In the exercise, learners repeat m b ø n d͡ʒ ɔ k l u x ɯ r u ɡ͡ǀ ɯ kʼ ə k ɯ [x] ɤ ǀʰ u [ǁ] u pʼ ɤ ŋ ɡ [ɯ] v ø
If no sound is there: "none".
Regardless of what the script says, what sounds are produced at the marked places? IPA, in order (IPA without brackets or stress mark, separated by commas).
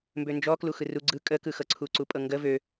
x, ǀ, ə